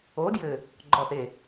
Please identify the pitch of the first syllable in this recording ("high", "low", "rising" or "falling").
rising